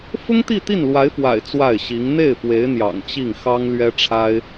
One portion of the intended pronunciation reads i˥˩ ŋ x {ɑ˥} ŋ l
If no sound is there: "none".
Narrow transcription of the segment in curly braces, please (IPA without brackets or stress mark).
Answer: ɑ˥